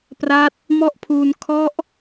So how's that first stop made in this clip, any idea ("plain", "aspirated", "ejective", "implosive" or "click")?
plain